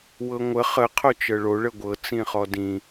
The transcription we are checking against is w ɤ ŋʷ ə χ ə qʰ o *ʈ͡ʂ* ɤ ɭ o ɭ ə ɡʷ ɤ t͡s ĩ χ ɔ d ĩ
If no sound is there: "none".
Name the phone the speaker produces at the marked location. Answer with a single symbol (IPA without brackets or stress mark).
t͡ʃ